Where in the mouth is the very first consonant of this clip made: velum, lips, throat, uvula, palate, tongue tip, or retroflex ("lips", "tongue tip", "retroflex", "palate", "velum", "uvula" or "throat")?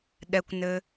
tongue tip